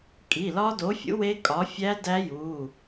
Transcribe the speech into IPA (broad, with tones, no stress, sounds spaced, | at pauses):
kʼ i˩˧˩ l ɒ˦˥ d o˨˥ fʲ ṵ˨˥ w e˦˥ kʼ ɒ˨˥ fʲ æ˦˥ d æ˦˥ j u˩˧˩